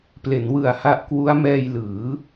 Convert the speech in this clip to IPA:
ple˩˦nwɯ˨˩a̯ha˦˥ʔkwu˦˥a̯ mɛː˧jlɯː˩˦

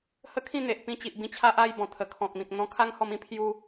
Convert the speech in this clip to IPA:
hə˦kʰĩ˥˧n̪e˨ʔ pĩ˧t͡ɕi˨ʔbĩ˧ t͡ɕʰa˦ʔa˥˧jbɔ̃˨˩ t̪ʰə˨˩kʰɔ̃˨k̚mĩ˨k̚ n̪ɔ̃˧kʰa˦ŋ hɔ˧mĩ˦pʰju˧

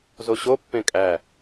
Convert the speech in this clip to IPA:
zoɕo pːẽkʼæ

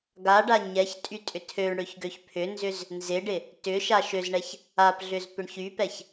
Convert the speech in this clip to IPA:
ɡaɖa ɲɛç tʼytʼʏtʰøɳɽøç ɡøçpʰʏnzʏz | nzɪɖɪ | tʏ ʃaʃøzɳɛç | apɮʏz pʏɳçypɛç

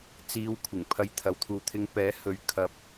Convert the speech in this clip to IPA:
t͡siː˧wkʷʰɪ˨˩ŋ pʰɐ˧jt̪ʰɐ˨w t̪ʰuː˨t̪ʰɪ˧ŋ pɛː˨˥ hɵ˨˧ɥ kʰɐ˨p̚

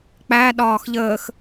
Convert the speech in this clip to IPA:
k͡pæ ɗɒːxʎəːx

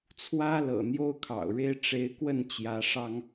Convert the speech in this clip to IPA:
t͡sʰwä˦lɤ̰˨˩ n̪jo˦ʊ̯kʰɑ̰˨˩ʊ̯ɻe˦ɪ̯ ʈ͡ʂe˨˦ɪ̯kwə˥˨n t͡ɕjä˨˦ʂɑ˦ŋ

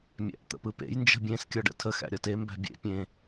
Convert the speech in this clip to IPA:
mʲæ̰ʔt̪ə̰pɯpḛj nd͡ʒə̤bʲẽs kʲɒɖə̰tʰə xæ̰ɾʲɒte mbæ̤bʲḛ pʲẽ

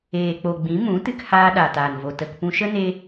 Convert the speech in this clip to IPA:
eː˨k͡po˨ɡ͡bĩ˨˦ mũ˨˦tɨ˧khaː˧ ɗa˨taː˨nvo˨ tə˧k pũ˧ʃə˦ ne˦

